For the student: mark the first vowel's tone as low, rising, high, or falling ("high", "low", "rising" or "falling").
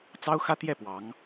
high